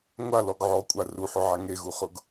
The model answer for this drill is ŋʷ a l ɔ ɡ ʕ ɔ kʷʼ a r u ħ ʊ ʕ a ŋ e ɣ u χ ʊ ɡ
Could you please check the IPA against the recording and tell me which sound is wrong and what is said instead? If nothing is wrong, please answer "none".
none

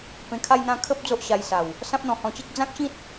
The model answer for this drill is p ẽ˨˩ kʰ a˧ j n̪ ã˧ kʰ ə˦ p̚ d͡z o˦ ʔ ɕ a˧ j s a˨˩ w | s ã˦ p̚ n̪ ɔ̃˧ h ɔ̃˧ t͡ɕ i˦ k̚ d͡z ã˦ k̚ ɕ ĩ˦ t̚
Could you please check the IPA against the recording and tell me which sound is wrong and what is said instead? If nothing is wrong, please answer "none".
none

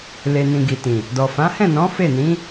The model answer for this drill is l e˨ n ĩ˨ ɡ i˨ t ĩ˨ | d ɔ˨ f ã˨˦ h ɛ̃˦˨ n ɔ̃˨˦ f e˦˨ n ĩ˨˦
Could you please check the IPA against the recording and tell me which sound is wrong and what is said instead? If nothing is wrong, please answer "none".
none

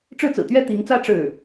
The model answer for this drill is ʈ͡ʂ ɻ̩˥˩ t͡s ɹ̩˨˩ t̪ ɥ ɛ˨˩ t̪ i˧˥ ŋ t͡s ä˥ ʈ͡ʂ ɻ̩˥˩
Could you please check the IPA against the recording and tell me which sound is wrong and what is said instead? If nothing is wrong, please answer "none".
ɛ˨˩ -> ɛ˥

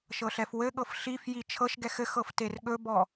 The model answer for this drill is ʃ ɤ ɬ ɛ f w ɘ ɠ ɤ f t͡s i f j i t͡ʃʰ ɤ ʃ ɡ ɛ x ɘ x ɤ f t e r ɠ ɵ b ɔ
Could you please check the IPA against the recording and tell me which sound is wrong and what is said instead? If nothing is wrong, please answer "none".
t͡s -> ɬ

